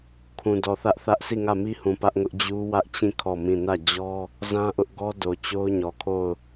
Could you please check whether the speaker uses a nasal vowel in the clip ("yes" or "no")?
yes